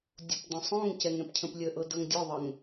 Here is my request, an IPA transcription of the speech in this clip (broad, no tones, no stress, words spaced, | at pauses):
dʲopdə̃sˤõŋcɛŋ ɛ̃pcʰə̃plʲəʔɤ dɤŋdʲʊðˤəŋ